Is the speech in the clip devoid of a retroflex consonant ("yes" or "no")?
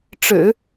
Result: no